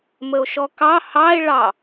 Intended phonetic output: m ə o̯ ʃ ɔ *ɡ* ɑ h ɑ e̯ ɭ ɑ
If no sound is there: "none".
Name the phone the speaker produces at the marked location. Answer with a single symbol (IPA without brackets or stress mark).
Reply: k